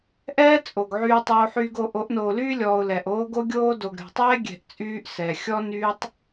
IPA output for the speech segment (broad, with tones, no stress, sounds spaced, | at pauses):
ʔ ɛː˦ t͡sʼ o˨ ɡ ʕ yː˦ tˤ oː˦ ħ yː˦ ɡ o˦ ʔ o˨˦ ʔ n oː˨ l yː˦ lʲ ɔː˨ ʊ̯ l ɛ˨ ʔ oː˦ ɡ o˦ ɡʲ oː˦ d o˨ ɡ ɾʲ ɔ̤˨ tˤ ɛː˦ ɡʲ ɛ̤˦˨ ʔ t͡sʼ yː˦ ʔ s ɛː˨ xʲ ɔ˦ n yː˦ tˤ